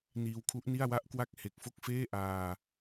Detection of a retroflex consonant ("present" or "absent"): absent